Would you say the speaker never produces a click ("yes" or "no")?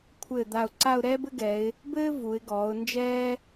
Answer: no